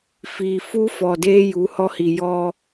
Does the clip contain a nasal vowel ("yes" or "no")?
no